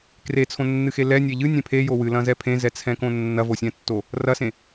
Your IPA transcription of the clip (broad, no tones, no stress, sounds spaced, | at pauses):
k r e t͡sʰ õ nː ɨ x e l ɛ nʲ e ʎ ɨ nʲ ẽ pʰ e j o w ɨ l ɐ̃ z ɛ pʰ ẽ z ɛ t͡sʰ ɛ̃ k õ nː ɐ v o sʲ ɛ̃ tː o | r ɐ s ẽ